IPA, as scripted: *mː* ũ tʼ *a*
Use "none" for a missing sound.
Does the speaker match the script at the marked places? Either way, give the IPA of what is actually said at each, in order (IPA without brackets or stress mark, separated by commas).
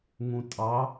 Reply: ŋ, ɑ